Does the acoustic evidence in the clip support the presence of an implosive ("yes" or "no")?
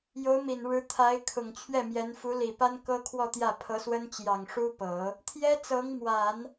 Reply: no